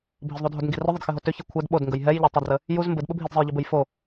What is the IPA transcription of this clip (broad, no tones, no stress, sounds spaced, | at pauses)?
bʱ ə z ðˤ u dʱ o d ŋ ɡ i r ʏ ðˤ ɘ d x ɘ ɦ o t ʏ ç i kʷʰ ɛ d ɓ o d ŋ ɡ ə j ɦ ɛ j ʎ ɘ tˤ u d r ə | j u z m b ɘ d ɓ ə bʱ i d zˤ ɘ j ʎ ɛ b ɘ j f o